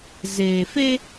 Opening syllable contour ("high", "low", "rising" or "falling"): low